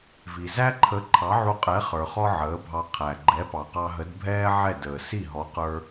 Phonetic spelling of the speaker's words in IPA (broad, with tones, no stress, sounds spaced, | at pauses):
v i˩ z æ˥ ǃʰ ə˩˥ ǃʰ ɑ˩˥ ʕ u˧ qʼ ɛ˩˥ χ ə˞˩ χ ɔ˧ ʕ əː˩˥ bʱ ɑ˧ qʰ æ˩ ɡ͡ǃ ɛ˩˥ p ɑ˩ q ɑ˧ ɦ ə˩˥ d bʱ ɛː˥ ʕ ɛ˥˩ d əː˩ s i˥˩ ɦ ɔ˩˥ q ə˞˧